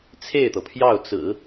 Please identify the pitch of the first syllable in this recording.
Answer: falling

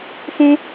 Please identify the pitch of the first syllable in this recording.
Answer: high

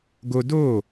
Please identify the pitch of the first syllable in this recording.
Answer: high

